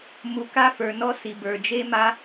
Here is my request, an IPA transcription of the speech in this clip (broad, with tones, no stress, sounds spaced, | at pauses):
m u˧ k a˥ f ə˞˧ n ɔ˥ s i˧ b ə˞˧ d͡ʒ e˥ m a˥